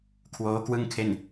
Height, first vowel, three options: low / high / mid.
mid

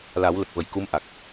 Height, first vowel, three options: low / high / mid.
low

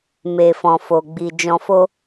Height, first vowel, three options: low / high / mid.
mid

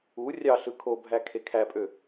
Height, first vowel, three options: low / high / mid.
high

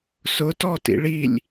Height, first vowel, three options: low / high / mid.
high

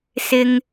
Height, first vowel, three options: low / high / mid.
high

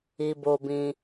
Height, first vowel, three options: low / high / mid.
high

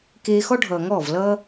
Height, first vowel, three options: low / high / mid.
mid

